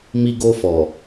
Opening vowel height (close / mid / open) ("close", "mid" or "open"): close